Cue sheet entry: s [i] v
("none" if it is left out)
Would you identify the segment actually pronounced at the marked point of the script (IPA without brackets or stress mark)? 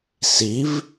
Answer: i